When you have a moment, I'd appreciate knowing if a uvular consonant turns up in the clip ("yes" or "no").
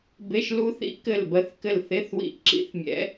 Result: no